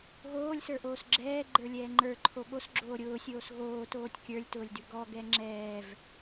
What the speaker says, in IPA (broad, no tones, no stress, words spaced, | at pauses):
ɣoːlʲsə˞ʔoːs ɡ͡ǁɛːɡ͡ǃə˞lʲɛː ŋ͡ǃə˞ǃʰo ɠosɡ͡ǁoː ɾʲʊːsʲoːs ɣoːtoːtʲ kʲə˞lʲtʊːlʲdʉ ɡɔɡɛ ŋ͡ǁɛːv